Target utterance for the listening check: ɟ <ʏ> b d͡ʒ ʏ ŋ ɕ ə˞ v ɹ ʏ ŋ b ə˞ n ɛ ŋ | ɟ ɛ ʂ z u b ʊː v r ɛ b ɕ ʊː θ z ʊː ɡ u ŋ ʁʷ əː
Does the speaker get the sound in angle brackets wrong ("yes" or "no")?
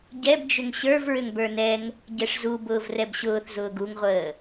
yes